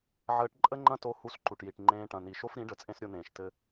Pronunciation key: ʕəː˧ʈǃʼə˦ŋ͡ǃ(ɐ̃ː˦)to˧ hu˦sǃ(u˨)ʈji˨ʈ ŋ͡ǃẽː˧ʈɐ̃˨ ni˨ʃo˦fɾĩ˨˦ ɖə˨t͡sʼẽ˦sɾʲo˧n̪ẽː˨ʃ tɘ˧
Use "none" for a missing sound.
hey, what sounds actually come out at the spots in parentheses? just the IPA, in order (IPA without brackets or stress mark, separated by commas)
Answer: ɐ̃˦, u˨